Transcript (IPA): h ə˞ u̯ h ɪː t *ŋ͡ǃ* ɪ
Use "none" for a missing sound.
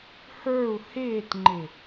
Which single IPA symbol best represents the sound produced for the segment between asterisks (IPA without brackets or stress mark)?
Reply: ŋ͡ǃ